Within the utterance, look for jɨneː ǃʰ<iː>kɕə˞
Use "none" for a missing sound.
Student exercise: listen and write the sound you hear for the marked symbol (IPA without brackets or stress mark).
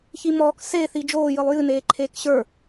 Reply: eː